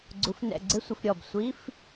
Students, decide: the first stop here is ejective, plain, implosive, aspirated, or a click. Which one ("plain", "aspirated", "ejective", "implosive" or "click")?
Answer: click